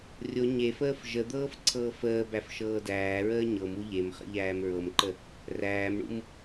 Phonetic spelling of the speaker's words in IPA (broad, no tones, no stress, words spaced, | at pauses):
rʲo ɲefəːf ʒəd̪ɤːf ǀʰɤːfəːbæf ʃɤːdæːɹəː ɲɤmu ʎemχə̰ ʎæːmɹɤmǃə | ræːmɳṵm